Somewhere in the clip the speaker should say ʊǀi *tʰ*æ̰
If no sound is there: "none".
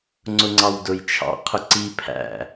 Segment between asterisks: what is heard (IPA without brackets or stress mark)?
pʰ